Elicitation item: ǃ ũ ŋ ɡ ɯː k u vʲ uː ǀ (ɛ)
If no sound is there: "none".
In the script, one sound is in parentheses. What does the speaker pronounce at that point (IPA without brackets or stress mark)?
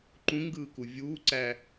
æ